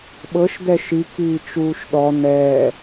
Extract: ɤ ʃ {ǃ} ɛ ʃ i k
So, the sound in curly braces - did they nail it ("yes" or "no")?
no